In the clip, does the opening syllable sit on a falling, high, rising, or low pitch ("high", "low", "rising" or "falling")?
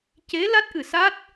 rising